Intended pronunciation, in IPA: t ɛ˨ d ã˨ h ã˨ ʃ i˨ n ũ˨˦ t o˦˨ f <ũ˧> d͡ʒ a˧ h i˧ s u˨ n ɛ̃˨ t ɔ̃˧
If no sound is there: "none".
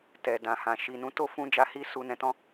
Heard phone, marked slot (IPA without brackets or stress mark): ũ˧